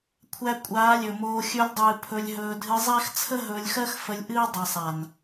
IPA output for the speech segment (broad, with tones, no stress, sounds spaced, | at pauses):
kʷʰ æ˧ kʷʼ aː˨˦ lʲ ɵ˨ m oː˧ xʲ ɵ˧ lʲ dˤ ɨː˨ pʰ ɵ˧ lʲ ɦ ɵː˧ dʱ ɨ˧ zˤ æ˦ x t͡sʰ ə˦ ɦ ɵː˧ lʲ x ɜ˦ x f ə˧ lʲ ʔ ɨː˦ dˤ ɨ˨ sˤ a˨ n